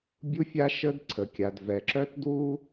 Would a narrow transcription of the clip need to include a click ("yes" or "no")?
yes